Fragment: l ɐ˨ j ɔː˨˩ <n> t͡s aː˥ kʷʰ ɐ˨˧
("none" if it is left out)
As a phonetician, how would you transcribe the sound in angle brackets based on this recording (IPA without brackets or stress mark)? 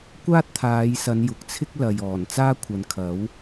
n